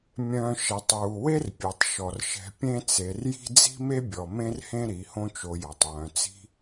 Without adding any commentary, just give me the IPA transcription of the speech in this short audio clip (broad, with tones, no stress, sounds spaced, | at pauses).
mʲ œ̃˦ ʃ ɛ˨ tˤ w u˨ w e˦ r pʲ ø˨ tˤ ʃ ɔ˨ r ʃ ɛ̤˧ pʲ ẽ˦ t͡s e˧ r j i̤˦ d͡z i̤˦ m e˦ bʲ ɔ˨ m ẽ˦ r h ẽ˦ ɾ i˨˦ h õ˦ t͡ʃ o˧ j ɔ˨ tˤ w œ̃˨ t͡s i̤˦